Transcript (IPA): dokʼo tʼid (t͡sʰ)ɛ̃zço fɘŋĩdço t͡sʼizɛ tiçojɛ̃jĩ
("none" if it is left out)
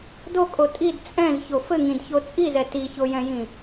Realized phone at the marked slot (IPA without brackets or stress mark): t͡sʼ